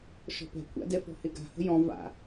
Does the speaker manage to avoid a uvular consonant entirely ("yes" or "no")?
yes